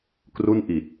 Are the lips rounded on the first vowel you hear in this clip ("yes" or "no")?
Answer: yes